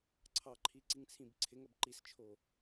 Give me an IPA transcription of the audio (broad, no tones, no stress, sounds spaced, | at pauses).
ǀʰ ɑ ǃʰ i ǀ i ŋ t͡sʰ ĩ b ǀʰ ɪ ŋ ɐ b ǃ i s t͡ʃʰ o